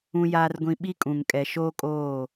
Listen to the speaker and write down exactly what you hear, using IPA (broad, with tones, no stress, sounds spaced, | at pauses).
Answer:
ũ˨ j aː˨ r ɡʷ ĩ˨ ɓ i˦ kʼ ũ˨ ŋ kʼ ɛ˨ ʃ oː˦ kʼ oː˦˨